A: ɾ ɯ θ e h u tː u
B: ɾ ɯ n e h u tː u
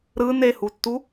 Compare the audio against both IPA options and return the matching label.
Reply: B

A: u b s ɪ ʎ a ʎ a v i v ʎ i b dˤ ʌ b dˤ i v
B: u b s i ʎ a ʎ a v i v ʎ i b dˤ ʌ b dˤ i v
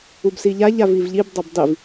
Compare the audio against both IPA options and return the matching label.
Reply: B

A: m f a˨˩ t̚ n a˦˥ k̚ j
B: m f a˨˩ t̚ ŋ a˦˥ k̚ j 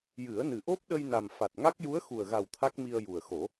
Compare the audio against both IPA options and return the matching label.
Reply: B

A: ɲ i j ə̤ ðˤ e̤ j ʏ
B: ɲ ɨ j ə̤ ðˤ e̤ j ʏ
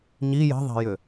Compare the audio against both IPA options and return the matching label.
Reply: A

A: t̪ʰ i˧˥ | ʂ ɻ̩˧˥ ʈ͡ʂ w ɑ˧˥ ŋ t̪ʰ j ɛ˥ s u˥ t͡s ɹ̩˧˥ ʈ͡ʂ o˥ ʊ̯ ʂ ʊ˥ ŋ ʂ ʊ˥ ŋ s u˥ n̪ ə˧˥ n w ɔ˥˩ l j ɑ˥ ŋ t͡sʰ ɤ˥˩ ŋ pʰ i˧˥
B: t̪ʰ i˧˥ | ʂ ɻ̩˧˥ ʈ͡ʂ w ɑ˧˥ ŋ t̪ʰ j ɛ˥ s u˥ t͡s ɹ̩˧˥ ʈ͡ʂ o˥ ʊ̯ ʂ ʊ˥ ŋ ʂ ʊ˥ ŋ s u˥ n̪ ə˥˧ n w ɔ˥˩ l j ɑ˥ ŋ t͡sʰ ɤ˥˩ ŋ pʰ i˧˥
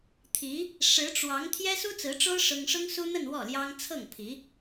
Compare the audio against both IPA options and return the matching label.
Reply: B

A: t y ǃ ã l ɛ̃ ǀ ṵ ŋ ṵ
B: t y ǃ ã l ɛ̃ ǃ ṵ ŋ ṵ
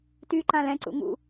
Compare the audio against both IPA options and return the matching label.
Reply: A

